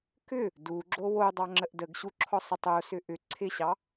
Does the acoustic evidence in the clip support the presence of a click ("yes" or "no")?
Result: yes